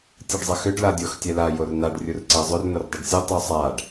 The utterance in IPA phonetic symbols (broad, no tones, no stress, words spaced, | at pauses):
tʲɯɖzˤɐxʏɖ ladʲox tʲɛla jornaɖ rʲurǀɛzˤʏr nordˤɐɖsʲɯ tˤusˤaɖ